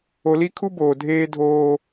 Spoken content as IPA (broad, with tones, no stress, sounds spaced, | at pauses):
o˨ l i˦ kʰ u˦ b oː˨ dʱ eː˦ dʱ oː˦